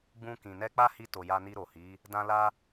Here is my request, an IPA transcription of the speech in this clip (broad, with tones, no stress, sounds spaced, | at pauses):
ɡ͡b ũ˧ k ĩ˨ n ɛ˧ k͡p a˦ h i˧ t o˨ j a˧ n i˧ ɾ o˨ h i˨˦ | d ã˦ l a˦